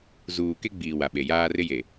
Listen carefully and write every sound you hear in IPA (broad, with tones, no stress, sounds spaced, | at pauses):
z uː˨ k e˦ ɡ͡b iː˨ w a˨ ɓ e˨ j aː˦ r ɪ˦ j e˨